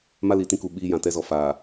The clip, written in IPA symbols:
m a˦ l i˨ t ĩ˦ k u˨ ɓ iː˦ j ã˨ t ɛ˦ z ɔ˨ f aː˨

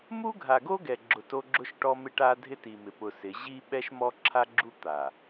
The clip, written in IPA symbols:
m u˦ ɡʱ a˨ ɡ o˦ ɡ ɛ˨ ɡ͡ǁ ʊ˨ t o˦ ɡ͡ǁ ʊ˦ ʃ ʈ ɔ˦ m ɪ˦ ʈ a˦ dʱ ɪ˦ t i˨ m ɪ˨ p ʊ˨ s ɪ˨˦ ʑ i˦ ɓ ɛ˦ ʃ m ɔ˦ ǁʰ a˦ ɡ͡ǁ u˦ t̪ a˨

